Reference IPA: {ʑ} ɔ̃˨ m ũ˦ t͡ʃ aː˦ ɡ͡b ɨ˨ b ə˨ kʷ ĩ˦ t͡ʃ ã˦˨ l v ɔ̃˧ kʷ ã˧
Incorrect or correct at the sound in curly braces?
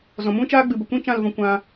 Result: incorrect: z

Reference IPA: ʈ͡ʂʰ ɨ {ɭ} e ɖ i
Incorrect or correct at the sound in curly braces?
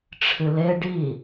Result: incorrect: l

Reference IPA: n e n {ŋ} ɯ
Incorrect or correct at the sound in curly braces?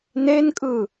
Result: incorrect: kʼ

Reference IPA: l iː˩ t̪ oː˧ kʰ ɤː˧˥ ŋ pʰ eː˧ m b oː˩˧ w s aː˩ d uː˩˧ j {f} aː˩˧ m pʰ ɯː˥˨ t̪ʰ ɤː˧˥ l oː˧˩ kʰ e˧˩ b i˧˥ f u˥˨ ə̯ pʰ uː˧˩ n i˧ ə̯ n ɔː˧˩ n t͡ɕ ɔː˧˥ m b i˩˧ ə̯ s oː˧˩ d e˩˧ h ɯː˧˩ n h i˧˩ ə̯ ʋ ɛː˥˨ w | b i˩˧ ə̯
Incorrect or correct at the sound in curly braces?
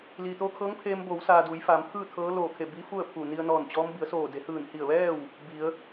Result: correct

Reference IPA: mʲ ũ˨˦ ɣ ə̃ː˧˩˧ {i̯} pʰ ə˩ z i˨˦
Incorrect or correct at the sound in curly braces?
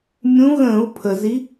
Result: incorrect: u̯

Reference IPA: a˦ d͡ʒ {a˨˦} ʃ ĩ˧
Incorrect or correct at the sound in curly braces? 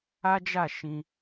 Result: incorrect: a˦˨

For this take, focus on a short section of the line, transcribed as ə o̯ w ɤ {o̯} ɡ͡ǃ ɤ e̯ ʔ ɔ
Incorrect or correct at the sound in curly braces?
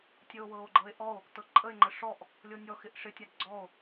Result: correct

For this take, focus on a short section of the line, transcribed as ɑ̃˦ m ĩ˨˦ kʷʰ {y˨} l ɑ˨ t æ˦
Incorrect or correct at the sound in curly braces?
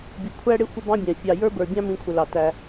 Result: incorrect: ɪ˨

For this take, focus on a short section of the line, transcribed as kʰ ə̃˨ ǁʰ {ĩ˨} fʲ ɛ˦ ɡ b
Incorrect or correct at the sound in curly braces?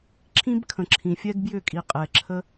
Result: correct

